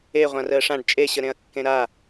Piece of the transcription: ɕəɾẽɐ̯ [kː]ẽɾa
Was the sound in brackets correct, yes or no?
yes